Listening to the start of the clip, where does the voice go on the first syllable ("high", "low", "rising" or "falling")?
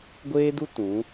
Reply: high